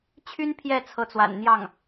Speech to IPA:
t͡ɕʰ y˥ n pʰ j ɛ˥˩ t͡sʰ ɤ˧˥ t͡s w a̰˨˩ n n̪ j ɑ˥˩ ŋ

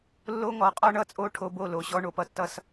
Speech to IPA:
lː o˦ ŋ ɔ˨˦ qʼ ɔ˦ ɳ ʌ˦ t͡sʼ o˦ ʈʰ o˦ b o˥˨ l o˨˦ ɕ ɔ˦ ɳ o˦ p ʌ˦ tː ʌ˥˨ s

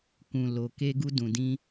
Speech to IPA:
k ũ˨ l o˨ k e˧ ɡ u˧ d ũ˨ d ĩ˧

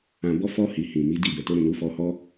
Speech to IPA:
ã˨ b ɔ˧ f ɔ˧ h i˨ h ĩ˨ m i˨˦ d i˦˨ b ɛ˨ t o˧ ɾ ũ˨ n u˨˦ f ɔ˧ h ɔ˦

